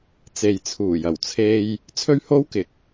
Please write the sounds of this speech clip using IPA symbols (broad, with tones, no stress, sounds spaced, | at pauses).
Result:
t͡s e˨ j t͡sʰ uː˨˩ j ɐ˨˩ w t͡sʰ e˧ j | t͡sʰ ɵ˥ ɥ h o˥ w k ɪ˨˥ k̚